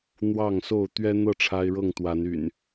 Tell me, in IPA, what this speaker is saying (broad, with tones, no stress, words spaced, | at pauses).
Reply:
n̪wɑ˥˨ŋso˥˨ʊ̯ t̪ɥɛ˦n̪ɤ˥˨ ʈ͡ʂʰa˦ɪ̯ɻɤ˥˨ŋt̪wa˨˦ny̰˨˩n